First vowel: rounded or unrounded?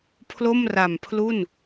rounded